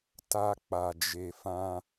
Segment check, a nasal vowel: present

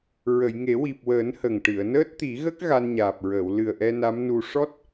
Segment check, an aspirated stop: absent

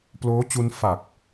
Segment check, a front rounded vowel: absent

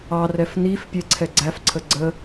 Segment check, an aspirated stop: present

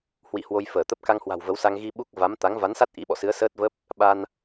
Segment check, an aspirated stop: absent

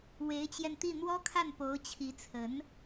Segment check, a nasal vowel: absent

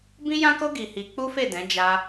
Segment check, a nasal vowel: present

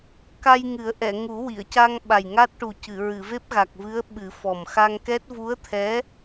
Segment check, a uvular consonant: absent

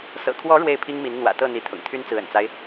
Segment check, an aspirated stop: present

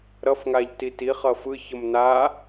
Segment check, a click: absent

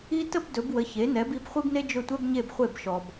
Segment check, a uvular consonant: present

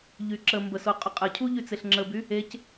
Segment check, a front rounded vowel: present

